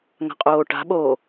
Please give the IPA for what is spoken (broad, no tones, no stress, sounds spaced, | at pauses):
ŋ a̤ qʼ oː ʈ a̤ ɓ oː